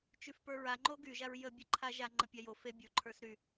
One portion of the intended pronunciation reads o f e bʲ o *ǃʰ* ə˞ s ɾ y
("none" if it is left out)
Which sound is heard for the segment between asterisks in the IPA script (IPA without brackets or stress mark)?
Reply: ǃʰ